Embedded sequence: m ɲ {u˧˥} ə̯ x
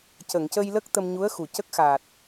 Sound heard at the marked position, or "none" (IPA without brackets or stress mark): u˧˥